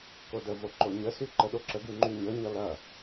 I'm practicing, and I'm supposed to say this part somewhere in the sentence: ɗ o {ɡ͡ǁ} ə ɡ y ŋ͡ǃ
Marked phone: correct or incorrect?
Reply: incorrect